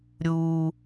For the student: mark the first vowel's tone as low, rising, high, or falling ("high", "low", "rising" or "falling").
high